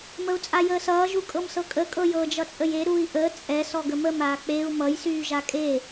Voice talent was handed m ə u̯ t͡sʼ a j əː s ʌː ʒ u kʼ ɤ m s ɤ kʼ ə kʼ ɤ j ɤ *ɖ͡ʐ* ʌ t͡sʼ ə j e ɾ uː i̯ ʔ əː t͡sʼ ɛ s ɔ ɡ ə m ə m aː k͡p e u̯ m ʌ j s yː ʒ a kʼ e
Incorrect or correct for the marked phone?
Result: incorrect: d͡ʒ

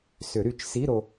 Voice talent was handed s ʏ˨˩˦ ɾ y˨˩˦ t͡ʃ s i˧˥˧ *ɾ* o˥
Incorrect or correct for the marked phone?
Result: correct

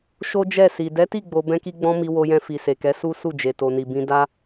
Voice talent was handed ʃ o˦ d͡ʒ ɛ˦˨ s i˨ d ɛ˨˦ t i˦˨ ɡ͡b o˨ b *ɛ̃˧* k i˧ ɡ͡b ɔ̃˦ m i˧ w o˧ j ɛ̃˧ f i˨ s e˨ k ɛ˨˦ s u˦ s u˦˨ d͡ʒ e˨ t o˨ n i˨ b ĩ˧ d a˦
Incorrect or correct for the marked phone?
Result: correct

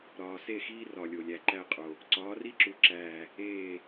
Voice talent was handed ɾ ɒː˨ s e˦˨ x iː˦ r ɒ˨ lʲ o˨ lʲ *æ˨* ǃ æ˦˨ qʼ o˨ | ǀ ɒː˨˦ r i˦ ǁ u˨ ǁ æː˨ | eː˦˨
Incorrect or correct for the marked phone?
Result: correct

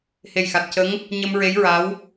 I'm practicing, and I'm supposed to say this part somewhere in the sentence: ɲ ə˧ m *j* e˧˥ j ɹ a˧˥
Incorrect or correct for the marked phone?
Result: incorrect: ɹ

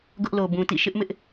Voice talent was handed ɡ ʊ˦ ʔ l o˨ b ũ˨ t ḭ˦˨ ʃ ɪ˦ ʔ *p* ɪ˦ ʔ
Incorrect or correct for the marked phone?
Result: incorrect: m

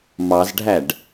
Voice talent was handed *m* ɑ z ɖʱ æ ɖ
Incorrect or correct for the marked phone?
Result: correct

